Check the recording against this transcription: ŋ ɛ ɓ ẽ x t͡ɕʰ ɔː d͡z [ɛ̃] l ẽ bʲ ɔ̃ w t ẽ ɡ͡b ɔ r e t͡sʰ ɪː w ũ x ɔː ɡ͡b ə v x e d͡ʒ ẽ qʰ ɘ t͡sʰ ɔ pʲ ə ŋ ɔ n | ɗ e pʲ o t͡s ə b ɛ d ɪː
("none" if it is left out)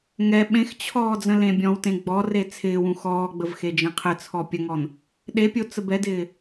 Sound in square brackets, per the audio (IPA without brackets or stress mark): ə̃